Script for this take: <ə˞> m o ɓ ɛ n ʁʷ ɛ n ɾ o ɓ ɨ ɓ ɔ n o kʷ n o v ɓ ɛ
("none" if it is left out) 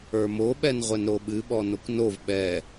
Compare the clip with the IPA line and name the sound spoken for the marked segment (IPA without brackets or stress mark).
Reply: ə˞